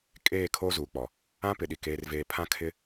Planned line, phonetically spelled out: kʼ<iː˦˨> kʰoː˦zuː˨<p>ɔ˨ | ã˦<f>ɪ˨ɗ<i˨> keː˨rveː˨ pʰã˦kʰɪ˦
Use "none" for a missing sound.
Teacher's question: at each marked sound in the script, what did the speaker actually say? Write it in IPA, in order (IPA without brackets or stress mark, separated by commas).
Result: eː˦˨, k͡p, p, i˨